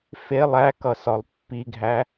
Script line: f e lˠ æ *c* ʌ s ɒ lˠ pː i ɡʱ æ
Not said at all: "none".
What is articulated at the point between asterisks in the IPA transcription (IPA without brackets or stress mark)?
k